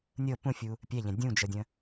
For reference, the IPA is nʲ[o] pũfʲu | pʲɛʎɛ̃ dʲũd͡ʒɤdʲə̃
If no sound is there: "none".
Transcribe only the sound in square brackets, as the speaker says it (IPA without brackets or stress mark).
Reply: ɤ